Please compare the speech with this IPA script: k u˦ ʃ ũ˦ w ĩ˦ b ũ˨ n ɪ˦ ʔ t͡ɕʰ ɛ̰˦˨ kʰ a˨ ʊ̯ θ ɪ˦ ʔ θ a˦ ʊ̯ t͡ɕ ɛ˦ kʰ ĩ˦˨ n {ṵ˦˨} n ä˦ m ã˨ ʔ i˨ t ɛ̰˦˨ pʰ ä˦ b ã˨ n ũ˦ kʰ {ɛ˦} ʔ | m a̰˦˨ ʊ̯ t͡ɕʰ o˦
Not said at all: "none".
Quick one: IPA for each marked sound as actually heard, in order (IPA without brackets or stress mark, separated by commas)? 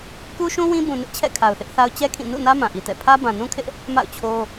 ṵ˦˨, ɪ˦